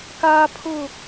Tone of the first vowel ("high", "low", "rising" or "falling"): high